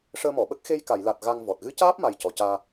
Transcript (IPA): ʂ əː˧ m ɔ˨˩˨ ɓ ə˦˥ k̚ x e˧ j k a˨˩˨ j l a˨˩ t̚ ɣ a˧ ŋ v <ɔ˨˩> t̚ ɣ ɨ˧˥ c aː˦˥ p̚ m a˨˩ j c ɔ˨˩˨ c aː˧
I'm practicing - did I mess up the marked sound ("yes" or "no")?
no